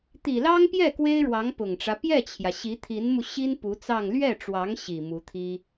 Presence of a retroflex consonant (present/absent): present